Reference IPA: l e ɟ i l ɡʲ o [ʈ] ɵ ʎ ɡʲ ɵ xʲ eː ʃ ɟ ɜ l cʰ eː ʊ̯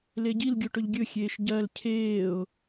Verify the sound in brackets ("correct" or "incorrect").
correct